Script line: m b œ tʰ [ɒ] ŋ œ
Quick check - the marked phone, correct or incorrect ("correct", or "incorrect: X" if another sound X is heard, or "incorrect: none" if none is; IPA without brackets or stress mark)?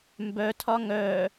correct